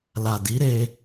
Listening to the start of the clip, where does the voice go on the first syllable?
low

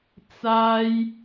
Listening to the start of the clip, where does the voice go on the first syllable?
high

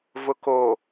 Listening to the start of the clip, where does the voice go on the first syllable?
low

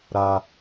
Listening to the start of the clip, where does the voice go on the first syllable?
low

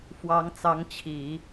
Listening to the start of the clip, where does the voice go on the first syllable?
rising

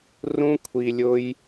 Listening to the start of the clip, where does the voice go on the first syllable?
high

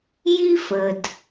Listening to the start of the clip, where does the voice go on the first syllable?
high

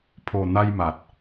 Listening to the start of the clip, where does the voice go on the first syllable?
low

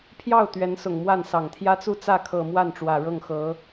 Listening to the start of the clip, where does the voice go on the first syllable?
falling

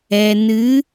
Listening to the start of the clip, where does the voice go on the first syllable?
low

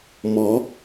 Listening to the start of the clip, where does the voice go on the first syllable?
rising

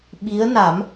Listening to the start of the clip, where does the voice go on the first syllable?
rising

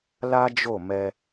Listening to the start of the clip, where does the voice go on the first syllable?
high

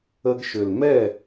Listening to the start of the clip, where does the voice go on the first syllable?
high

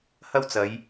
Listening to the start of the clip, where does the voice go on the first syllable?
high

